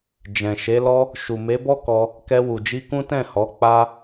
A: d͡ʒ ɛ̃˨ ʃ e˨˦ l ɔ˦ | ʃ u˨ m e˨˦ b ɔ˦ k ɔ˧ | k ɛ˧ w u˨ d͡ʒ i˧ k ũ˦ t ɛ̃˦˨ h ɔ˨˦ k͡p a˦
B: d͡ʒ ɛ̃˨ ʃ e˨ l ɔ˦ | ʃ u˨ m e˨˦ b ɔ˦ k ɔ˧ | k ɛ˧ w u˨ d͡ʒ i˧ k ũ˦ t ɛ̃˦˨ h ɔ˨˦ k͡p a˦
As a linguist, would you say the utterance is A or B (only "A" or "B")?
A